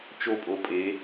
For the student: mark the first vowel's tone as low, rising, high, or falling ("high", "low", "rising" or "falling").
falling